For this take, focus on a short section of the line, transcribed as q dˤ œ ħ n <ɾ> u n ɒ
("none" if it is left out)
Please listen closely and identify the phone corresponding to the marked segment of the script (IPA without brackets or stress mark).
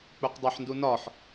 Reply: d